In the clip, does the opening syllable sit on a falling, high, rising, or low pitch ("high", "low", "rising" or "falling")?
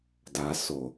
low